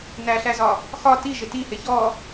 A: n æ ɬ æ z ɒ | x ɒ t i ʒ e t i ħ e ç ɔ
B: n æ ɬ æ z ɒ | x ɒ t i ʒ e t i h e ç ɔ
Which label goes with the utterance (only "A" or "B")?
B